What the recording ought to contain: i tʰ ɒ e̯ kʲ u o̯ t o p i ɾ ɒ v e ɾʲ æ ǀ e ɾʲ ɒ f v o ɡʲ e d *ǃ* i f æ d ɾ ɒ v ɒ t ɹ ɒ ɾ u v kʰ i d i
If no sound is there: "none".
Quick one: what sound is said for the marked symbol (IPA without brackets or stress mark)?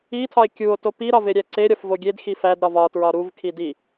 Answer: x